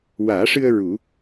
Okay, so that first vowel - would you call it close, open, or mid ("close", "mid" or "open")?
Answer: open